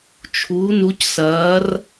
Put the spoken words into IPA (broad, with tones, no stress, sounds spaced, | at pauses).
t͡ʃʰ uː˨˦ n u˨˦ c s ɐː˨˦ r